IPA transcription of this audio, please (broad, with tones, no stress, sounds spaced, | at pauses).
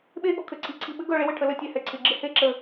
ɓ e˥˧ ɠ ɔ˧ kʰ ɘ˩˧ ǀʰ i˩˧ ǀʰ i˧˩ ɓ ɘ˥ ɡ œ˥˧ ɭ e˥ w ɘ˩˧ ʈʰ ə˩˧ l ə˧ tʲ ɛ˧˩ h ɛ˧ ǀʰ ɪ˩˧ ɡ͡ǁ ɪ˥˧ h e˥˧ ǁ ə˧˩